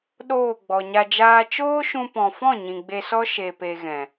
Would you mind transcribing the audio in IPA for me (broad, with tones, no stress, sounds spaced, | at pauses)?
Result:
ɗ oː˦˨ ɡ͡b ɔ˨ ɲ a˧ d͡ʒ aː˦ t͡ʃ oː˦ ʃ ũ˧ p ɔ̃˨ f ɔ̃˦˨ ɲ ĩ˨ ɡ͡b e˧ s ɔ˦ ʃ e˧ p e˧ ɣ ɛ̃˨